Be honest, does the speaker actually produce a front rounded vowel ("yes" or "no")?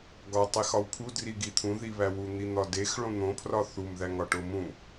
no